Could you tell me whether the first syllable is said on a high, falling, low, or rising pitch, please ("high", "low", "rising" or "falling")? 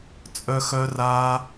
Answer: high